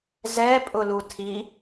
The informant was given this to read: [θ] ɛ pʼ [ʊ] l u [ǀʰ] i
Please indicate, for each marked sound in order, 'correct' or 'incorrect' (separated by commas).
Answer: incorrect, correct, incorrect